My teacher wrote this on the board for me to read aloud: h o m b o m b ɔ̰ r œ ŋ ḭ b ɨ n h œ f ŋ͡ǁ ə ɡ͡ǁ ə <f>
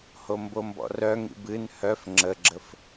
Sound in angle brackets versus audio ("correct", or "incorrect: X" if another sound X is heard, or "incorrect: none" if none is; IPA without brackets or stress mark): correct